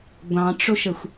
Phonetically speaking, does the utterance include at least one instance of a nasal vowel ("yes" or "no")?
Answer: yes